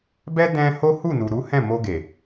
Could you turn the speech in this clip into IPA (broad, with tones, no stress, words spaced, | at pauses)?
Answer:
bɛ˦ dɛ̃˧ ho˦hu˦˨nu˨ ɾu˨˦hɛ̃˦˨mo˧ɡe˨